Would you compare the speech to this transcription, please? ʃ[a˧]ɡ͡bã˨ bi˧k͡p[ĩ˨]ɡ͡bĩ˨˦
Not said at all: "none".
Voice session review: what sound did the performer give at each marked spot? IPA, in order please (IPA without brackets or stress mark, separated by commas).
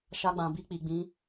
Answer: a˧, i˨